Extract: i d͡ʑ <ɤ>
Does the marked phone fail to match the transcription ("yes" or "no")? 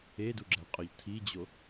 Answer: yes